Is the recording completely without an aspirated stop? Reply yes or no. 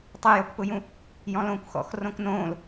yes